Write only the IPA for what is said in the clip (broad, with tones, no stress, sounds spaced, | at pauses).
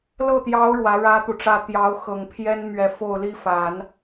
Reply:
l ɤ˥˩ t̪ j ɑ˧˥ ʊ̯ ɻ w ä˧˥ ɻ ä˥ t̪ u˨ ʈ͡ʂ ä˥˩ t̪ j ɑ˧˥ ʊ̯ x ɤ˨˩ ŋ pʰ j ɛ˥ n m ɥ ɛ˧˥ f o˥˩ ʊ̯ l i˥ f a˨˩˦ n